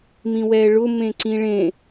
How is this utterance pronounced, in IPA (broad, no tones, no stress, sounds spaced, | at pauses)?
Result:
m ĩ w ɛː ɭ ʊ m ẽ ǀ ĩ ɭ ẽ